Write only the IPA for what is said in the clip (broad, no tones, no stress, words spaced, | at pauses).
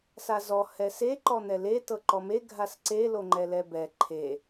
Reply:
sazɔ hɛse ǃɔn̪ɛle tɤǃɔme ɡʱasǀe loŋ͡ǃɛlɛbɛ ǃʰe